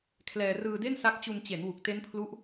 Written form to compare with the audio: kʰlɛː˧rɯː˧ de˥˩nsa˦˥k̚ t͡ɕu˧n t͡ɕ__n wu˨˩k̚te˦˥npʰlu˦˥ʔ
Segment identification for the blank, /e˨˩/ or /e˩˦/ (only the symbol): e˩˦